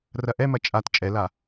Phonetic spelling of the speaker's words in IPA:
r ɐ ʔ ɛ m ɐ t͡ʃʼ a t t͡ʃʼ ɛ l a

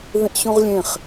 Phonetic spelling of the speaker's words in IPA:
ð ĩ ʔ ɕ ũ ʁ lʲ ẽ χ

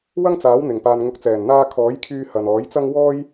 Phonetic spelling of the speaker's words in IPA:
w ɐ˥ ŋ t͡s aː˨˥ w n̪ ɪ˨˩ ŋ p aː˨ n ŋ ʊ˨ k̚ t͡s ɛː˨˩ n n̪ aː˧ kʰ ɔː˨˥ j kʰ yː˧ h ɐ˨ n ɔː˨˥ j t͡s ɐ˥ ŋ w ɔː˥ j

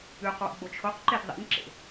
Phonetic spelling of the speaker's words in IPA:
ʉ q w ṵ ɡ͡b o t͡ʃʰ o q ǃ e d ðˤ ḭ n ǁ ḛ

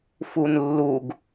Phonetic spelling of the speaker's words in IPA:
f u n lː u ɡ

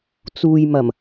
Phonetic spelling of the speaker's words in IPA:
t͡s uː˨ j m ɐ˨˩ m

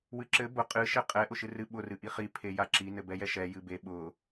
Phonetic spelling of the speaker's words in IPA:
w ɨ ǁ ɘ b ʊ qʼ ɨ ʃ ɛ qʼ ɛ ʔ ʊ ʃ ɨ r ɨ ɓ ʊ r ɨ ʔ i χ i pʰ e j a ǁ i n ɘ b ɛ j ɛ ʃ ɛ j ɨ b e ɓ ʊ

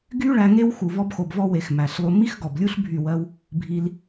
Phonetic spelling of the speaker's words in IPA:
ɡ y˦ ɭ æ˧ ŋ e˦ w x u˨ v ɔ˧ b x o˨ b v ɔ˧ w e˨ x m æ˨ ɬ lˠ u˧ m i˦ x ɡ ɔ˨ b lʲ u˦ ɬ bʱ y˦˨ w ɜ˦ w | bʱ i˧ l

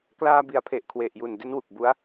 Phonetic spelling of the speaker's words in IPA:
k l aː˧ b i˩˦ a̯ pʰ e˨˩ ʔ kʰ w e˨˩ ʔ j u˨˩ n d e˦˥ n w u˨˩ k̚ b u˦˥ a̯

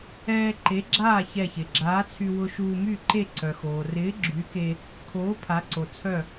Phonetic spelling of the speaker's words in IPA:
ɛː˧ ǃ e˨˥ ɡ͡ǁ aː˥˩ ç ɛ˧˩ ç ɪ˩ ɡ͡ǁ aː˨˥ t͡sʰ y˧ w ʊ˧ ʃ uː˧ m y˥˩ ǃ e˥˩ ǀ œ˩ x oː˩ r ɪː˨˥ ɡ͡ǁ y˨˥ k e˧ | kʰ oː˨˥ pʰ a˨˥ ǀ o˩ t͡sʰ œ˥˩

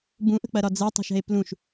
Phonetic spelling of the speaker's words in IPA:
b ũ ʔ ə̤ k͡p ɐ ɾ ɒ d͡z ɛ tˤ ṳ ʃ ɛ̤ e̯ p l ũ ʃ

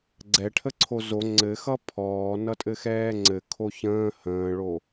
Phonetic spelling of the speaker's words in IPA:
ɡ͡ǀ ɛ ʈʰ ə ǀʰ o z o ŋ͡ǀ ɘ x ʌ pʰ ɔː n ʌ tʼ ɘ x ɛː ŋ͡ǀ ɘ kʰ o ç ə̃ː h ə̃ː ɭ o

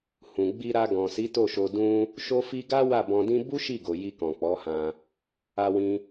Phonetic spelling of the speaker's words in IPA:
h ũ˨ ɡ͡b i˧ ɾ a˧ ɡ ɔ̃˨ s i˨˦ t o˦˨ ʃ o˧ d ũ˦ | ʃ o˦ f i˦ ɡ a˦ w a˦˨ b ɔ̃˧ d ĩ˦ b u˦ ʃ i˦˨ ɡ o˨ j i˧ k ɔ̃˨ k͡p ɔ˨˦ h ã˧ | a˧ w ĩ˧

